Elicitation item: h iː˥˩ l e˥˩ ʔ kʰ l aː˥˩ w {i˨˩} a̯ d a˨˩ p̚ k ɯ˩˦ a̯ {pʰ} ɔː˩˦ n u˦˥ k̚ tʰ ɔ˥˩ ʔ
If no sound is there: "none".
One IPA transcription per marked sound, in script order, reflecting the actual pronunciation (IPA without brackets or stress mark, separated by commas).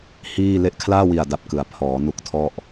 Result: i˨˩, pʰ